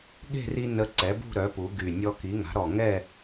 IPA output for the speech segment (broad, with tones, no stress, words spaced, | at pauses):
ɠe̤˥˨ri˧ nə˧ǀɛ˩˥bṳ˥˨ɾœ˩˥ pu˩˥ɡy˨˩ nʲɔ˧ki˩˥ŋa̤˩˥ ɾɔ˨˩ŋɛ˥˨